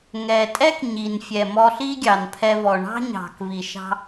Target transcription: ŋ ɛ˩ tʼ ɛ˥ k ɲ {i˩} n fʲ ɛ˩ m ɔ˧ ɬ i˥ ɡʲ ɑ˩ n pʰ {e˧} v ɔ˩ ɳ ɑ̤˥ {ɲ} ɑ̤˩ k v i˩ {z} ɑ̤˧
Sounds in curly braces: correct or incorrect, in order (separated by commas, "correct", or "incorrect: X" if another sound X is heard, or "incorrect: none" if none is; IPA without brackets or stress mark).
correct, incorrect: ɛ˧, correct, incorrect: ʃ